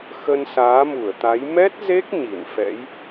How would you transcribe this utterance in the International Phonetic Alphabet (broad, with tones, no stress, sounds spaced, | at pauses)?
x ə˧ n s aː˨˦ m u˧˩ ə̯ t̪ a˨˦ j m ɛ˦˥ t̚ z e˦˥ k̚ ɲ i˧˩ n f ɛ̰˧˥ j